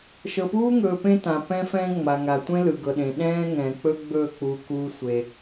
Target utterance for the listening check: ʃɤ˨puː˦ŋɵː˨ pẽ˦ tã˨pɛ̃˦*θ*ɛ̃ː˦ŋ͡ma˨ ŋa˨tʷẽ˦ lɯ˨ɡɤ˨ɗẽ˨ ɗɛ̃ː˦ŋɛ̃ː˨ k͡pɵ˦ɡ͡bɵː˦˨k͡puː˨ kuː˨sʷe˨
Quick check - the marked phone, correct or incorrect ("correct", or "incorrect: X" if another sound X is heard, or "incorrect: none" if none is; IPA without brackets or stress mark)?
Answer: incorrect: f